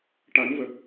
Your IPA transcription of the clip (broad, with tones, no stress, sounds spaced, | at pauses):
ʈ a˨˩˦ n v ə˨˩ k̚